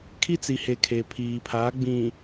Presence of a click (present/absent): absent